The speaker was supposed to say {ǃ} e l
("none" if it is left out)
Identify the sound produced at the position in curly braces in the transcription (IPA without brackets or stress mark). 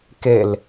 k